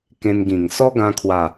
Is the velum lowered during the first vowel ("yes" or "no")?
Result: yes